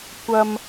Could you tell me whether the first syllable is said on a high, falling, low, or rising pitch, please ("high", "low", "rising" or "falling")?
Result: high